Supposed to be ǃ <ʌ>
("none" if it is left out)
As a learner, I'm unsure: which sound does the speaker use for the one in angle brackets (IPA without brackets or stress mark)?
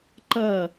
ʌ